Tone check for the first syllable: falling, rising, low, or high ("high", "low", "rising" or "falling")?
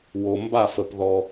low